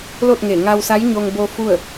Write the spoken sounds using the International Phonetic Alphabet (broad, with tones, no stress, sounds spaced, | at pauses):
l o˥˨ t̚ ŋ e˧˩ ŋ a˧ w s a˧˥ j ɲ o˧ ŋ b o˧ f u˥˨ ə̯